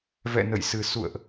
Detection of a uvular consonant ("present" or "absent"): absent